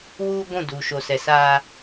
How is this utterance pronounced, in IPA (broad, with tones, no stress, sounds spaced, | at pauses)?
w uː˦ ɡʷ ũ˦˨ d u˨ ʃ o˨ s ɛ˨ s aː˦